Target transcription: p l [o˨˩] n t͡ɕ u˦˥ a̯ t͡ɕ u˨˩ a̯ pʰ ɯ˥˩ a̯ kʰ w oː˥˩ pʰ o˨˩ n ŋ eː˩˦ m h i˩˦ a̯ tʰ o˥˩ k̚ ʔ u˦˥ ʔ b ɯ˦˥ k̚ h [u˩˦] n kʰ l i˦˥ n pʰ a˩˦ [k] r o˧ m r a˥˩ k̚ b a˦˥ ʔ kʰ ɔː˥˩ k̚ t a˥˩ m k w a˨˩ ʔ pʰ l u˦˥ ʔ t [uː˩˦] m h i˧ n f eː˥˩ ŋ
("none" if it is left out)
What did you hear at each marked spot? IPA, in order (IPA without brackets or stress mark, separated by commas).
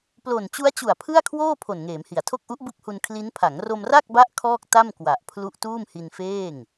o˨˩, u˧, ŋ, uː˥˩